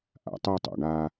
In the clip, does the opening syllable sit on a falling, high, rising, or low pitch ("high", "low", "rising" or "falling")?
low